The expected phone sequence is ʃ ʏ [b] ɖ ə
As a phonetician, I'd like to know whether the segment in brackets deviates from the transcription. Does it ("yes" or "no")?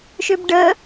no